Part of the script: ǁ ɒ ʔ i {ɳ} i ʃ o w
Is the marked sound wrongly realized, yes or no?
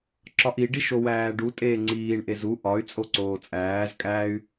yes